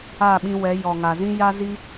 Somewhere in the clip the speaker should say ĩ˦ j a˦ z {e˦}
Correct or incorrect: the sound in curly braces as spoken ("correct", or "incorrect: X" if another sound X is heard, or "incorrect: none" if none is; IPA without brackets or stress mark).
incorrect: i˦